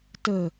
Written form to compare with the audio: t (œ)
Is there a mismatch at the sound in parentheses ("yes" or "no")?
yes